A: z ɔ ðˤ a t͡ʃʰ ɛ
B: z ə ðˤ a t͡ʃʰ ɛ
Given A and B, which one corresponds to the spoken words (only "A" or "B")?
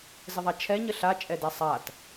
B